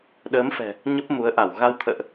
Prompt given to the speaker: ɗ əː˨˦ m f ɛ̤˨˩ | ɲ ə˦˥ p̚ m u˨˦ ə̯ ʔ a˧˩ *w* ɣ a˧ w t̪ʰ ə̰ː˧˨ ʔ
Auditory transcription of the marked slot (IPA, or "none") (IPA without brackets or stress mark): w